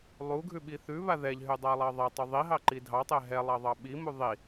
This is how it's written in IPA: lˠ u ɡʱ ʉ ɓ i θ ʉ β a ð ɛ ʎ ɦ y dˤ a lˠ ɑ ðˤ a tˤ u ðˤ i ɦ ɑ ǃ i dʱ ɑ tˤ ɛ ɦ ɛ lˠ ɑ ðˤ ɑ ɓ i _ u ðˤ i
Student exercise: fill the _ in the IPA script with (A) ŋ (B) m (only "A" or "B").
B